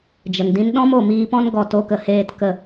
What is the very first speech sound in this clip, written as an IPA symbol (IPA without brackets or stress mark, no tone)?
d͡ʒ